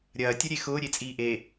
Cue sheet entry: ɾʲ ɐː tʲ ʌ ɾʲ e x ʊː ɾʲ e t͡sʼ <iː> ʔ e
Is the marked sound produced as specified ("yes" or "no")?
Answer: yes